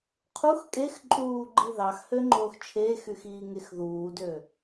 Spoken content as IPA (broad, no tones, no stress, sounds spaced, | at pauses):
qʰ u x kʼ e x ǃʼ uː ɡ͡ǃ i ð ɑ x h ø ŋ͡ǃ oː x t͡ʃʰ eː x y x iː ŋ e x ð uː d øː